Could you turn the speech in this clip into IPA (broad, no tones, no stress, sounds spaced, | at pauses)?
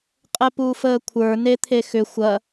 qʼ ɛ p uː f əː kʷʰ ə˞ n e t̪ʰ e x ʏ xʷ ɐ